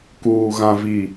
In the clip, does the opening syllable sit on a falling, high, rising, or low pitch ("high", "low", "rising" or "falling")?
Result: low